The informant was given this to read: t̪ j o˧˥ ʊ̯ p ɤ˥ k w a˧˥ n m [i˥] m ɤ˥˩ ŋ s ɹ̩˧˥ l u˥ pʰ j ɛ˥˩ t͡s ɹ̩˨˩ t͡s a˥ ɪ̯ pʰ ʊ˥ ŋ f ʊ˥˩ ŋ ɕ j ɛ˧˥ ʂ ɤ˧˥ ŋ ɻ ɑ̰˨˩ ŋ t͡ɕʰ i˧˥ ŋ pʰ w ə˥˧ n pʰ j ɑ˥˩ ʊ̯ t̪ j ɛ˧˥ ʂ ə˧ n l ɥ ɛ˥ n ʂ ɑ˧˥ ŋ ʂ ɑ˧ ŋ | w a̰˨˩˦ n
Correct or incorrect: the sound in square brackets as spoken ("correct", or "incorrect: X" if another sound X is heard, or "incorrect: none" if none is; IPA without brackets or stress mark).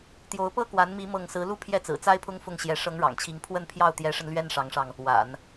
incorrect: i˧˥